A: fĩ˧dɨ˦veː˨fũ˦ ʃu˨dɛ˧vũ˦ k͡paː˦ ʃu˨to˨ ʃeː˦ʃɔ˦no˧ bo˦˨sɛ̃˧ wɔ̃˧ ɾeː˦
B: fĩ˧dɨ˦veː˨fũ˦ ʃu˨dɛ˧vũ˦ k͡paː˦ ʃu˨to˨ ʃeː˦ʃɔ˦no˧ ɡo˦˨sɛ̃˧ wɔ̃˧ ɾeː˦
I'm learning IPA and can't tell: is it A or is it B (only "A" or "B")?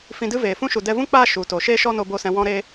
A